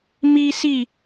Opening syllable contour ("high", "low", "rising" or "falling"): high